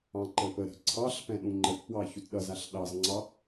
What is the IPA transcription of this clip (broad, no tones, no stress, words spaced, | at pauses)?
ɑ̃ǃəpəɾə̤ ǀʰɑɬpɛ̃ ɗũŋ͡ǃətpwɑ çutɗʌzaɬ ɗɑzŋ͡ǀɑ